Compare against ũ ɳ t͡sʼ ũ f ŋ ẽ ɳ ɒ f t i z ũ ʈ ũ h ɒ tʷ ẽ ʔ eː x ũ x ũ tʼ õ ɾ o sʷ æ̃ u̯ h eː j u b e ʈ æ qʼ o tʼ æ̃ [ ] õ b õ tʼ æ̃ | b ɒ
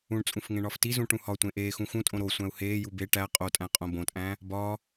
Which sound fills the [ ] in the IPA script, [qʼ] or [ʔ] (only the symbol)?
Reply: qʼ